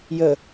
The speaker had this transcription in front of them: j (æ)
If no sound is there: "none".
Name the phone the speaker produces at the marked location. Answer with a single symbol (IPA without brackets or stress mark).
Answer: ə